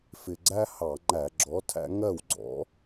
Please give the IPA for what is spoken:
f ɪ˨˩ ɡ͡ǀ æ˦ h ɑ˧˩˧ ŋ͡ǃ æ˧˩˧ ɡ͡ǁ ɔ˨˥ tʰ æ̰˦ ŋ ɜ˥˩ w ɡ͡ǀ ɔ̰˨˥

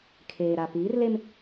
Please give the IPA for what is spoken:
kʰ eː˨ ɾ a˨ p iː˨˦ r l e˦ m

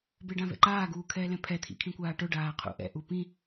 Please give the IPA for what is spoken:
b e ɖ ã v ɛ̰ ǃ aː ɡ uː kʰ ɛː l ɛ̃ pʰ ɛ t̪ʰ ḭ kʰ ĩ kʷ aː ʈ ʊ ɖ aː qʰ ṵ ʔ ɛ̰ ʔ u p ĩ

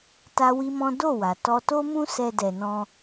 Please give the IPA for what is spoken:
t a˦ w i˦ m ɔ̃˦ d o˦˨ w a˨ t ɔ˧ t o˦ m ũ˦ s ɛ˧ d ɛ˧ n ɔ̃˧

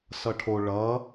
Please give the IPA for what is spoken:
s ʌ ʈʰ o ɭ ʌ

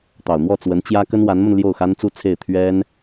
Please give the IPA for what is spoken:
t̪ ɑ˨˩ ʊ̯ n̪ w ɔ˥˩ t͡s w ə˧˥ n t͡ɕ j ä˥ k ə˥ n w a˧˥ n m ə˧ n l j o˥˩ ʊ̯ x a˥ n t͡s u˥˧ t͡sʰ e˥˩ ɪ̯ t̪ʰ ɥ ɛ˥ n

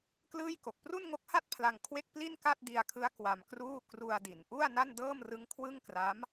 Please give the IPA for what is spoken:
k l ɯː˥˩ j k o˨˩ k̚ p r u˥˩ n ŋ o˦˥ k̚ h a˥˩ t̚ pʰ l a˧ ŋ kʰ w e˥˩ k̚ p l i˥˩ n k a˥˩ t̚ d i˧ a̯ kʰ ɯ˦˥ a̯ k w a˧ m k r uː˥˩ k r u˧ a̯ d i˩˦ n ʔ u˥˩ a̯ n a˥˩ n d ɤː˥˩ m r ɯ˦˥ ŋ kʰ w ɯ˥˩ ŋ k r a˦˥ m

